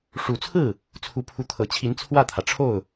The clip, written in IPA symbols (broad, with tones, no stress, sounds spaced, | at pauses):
ʂ u˨˩ t͡sʰ ɹ̩˥˩ | t͡sʰ u˧˥ pʰ u˧˥ t̪ʰ ɤ˨˩ t͡ɕʰ i˧˥ n t͡sʰ w ä˥˩ t̪ʰ ä˩ ʈ͡ʂʰ o˥˩ ʊ̯